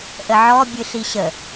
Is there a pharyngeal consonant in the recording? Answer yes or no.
yes